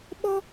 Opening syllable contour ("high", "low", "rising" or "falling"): high